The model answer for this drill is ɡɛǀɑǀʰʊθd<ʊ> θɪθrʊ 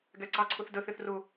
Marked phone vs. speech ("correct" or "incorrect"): incorrect